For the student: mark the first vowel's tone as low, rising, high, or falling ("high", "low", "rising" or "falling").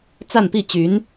falling